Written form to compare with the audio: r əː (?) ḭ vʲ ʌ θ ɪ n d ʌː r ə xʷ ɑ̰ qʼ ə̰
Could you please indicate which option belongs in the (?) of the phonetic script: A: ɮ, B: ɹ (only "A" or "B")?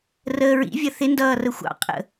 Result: B